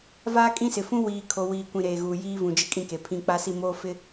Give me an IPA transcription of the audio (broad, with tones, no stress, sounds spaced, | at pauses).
v aː˦ kʼ ĩ˦ s ɪ˨ f ũ˦ w iː˨ kʰ o˨ w iː˨ kʷ ĩ˨ ɾ eː˨ ɣ uː˨ j iː˦ v ũ˨ d͡ʒ ɪ˦ kʼ ĩ˦ k e˨ pʰ ĩ˦ k͡p a˦ s i˦˨ m oː˦ f ɪ˦